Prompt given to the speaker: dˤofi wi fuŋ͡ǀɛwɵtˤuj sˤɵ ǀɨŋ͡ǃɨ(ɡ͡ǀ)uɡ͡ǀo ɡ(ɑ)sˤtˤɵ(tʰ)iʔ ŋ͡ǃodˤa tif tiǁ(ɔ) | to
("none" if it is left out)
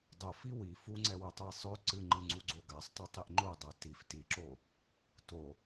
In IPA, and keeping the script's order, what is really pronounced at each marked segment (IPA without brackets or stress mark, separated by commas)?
ŋ͡ǀ, a, tˤ, o